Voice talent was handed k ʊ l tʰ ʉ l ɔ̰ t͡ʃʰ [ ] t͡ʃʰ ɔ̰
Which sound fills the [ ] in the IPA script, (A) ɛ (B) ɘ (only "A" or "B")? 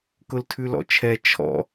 A